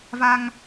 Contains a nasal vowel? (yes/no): no